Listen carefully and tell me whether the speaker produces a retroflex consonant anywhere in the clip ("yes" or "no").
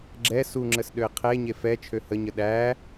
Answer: no